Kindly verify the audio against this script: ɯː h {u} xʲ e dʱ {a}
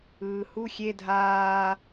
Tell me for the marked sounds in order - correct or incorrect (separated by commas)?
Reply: correct, incorrect